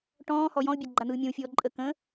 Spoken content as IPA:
ʈ ɔ̃ː h ɔ j ɔ̃ ʊ̯ bʲ a ɡ͡ǃ a n̪ ɯː mʲ ɔ̃ w fʲ ɔː ǃʼ ə k ə̃

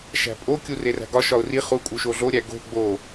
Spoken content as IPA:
ʃ æ̤ pʼ o kʲ u r e r æ̤ ɡ ɒ ʃ ɒ ʊ̯ r i χ u kʼ u ʃ o ɮ o ɾʲ æ ɡ o̤ ɡ͡b o

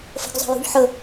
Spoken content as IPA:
f ə̤ ɡ zˤ ə̤ j ṳ ʎ ħ ə

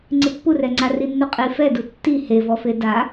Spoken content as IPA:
ŋ͡ǀ ɪ pː u r ɛ ŋ͡ǀ a r i nː u qʼ i f ɛ d u tː i h e v ɔ f e d a

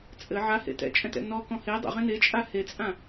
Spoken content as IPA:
t͡sʼ ɘ ʕ a h ḛ t ɛ̰ t͡ʃʼ ɛ̃ t ɛ̰ n ɔ k ɔ̃ h e dˤ ɛ̰ ʁ ẽ n e t͡ʃʼ a h e t͡sʼ ã

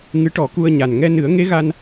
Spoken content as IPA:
ŋ ɨ˧˥ ʈ ɔ˨˩˦ k u˧ ə̯ ɲ a˨˩ n ŋ ɛ˧ n ɨ˨˩˦ ə̯ ŋ e˧˥ ɣ a˧ n

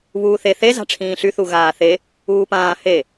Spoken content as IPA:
β uː θ e θ e z a̤ ʈ͡ʂʰ ĩː ɬ y θ u ɣ aː θ e | uː p ãː h e

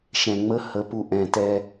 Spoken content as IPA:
ʃ ɛ̃˨ ŋ͡m ə˦ h ə˨˦ p u˨ ʔ ɛ̃˨ t ɛ˦

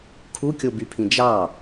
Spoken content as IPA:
kʰ u kʲ o b y pʰ ĩ d͡ʒ ɑ

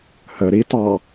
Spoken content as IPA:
h ə ɾ i t ɑ

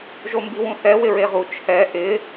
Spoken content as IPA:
ʒ o m b i w ũ θ ɛ w ɪ ɹ e ʁ u t͡ʃʰ ɛ ʔ ɪ

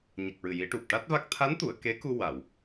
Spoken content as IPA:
ɲ ə˨˩ k̚ ɹ ɨ˨˩ j i˨˩˦ ʈ u˨˩ p̚ ʈ a˦˥ t̚ v a˦˥ k̚ t̪ʰ a˧˥ n t̪ u˨˩˨ ə̯ k e˧˥ k u˧ w a˨˩˨ w

